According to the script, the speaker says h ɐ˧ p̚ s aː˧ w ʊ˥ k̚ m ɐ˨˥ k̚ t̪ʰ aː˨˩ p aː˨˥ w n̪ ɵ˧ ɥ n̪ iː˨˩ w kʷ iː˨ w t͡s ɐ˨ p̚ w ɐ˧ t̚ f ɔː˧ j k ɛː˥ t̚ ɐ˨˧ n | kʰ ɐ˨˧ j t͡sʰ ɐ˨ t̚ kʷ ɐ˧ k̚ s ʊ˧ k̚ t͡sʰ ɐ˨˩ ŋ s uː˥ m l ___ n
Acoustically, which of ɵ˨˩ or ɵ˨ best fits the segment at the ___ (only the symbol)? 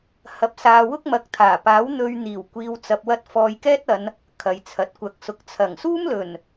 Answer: ɵ˨˩